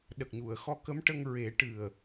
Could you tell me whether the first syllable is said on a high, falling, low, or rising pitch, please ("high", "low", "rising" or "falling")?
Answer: low